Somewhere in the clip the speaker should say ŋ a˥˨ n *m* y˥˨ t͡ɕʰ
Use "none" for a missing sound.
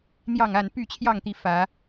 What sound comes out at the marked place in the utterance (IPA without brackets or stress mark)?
p